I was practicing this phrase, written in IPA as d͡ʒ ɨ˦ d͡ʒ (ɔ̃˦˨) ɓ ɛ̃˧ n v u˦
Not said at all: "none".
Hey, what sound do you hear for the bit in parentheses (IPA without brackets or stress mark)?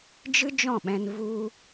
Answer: ɔ̃˦˨